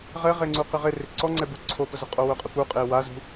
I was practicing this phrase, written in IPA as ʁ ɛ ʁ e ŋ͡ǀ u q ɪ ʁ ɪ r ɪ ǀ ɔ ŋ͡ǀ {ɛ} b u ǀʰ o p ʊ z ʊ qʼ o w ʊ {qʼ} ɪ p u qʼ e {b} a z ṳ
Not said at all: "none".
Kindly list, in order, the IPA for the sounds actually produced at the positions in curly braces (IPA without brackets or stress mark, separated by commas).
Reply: ɛ, qʼ, w